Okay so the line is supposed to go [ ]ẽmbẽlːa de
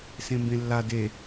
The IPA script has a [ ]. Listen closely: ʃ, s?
s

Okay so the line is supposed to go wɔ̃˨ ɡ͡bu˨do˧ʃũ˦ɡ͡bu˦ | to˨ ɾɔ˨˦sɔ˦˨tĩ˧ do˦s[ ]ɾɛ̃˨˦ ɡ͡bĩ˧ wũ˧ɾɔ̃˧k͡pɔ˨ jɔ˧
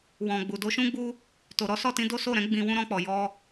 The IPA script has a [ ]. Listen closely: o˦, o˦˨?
o˦˨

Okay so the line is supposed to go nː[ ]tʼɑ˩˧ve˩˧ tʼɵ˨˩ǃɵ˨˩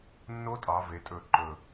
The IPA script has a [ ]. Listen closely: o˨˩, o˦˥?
o˦˥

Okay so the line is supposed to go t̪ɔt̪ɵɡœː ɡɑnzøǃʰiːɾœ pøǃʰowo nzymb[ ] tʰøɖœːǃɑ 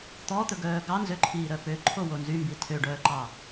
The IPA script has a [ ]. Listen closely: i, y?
i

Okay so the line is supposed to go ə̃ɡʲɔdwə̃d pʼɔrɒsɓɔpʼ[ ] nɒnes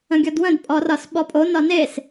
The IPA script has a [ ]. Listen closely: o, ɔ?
o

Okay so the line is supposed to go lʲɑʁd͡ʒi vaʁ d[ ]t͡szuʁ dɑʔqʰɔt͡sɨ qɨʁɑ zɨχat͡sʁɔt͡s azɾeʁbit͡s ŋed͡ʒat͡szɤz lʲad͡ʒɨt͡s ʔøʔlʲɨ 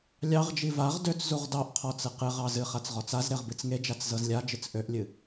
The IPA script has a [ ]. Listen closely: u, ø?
ø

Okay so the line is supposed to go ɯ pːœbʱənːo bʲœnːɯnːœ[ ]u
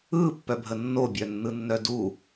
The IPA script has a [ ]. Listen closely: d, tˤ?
d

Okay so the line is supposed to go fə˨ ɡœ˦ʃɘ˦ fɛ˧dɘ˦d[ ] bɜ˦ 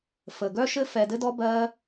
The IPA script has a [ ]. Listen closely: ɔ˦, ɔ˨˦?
ɔ˦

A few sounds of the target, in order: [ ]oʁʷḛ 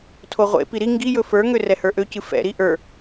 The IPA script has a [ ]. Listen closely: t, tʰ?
tʰ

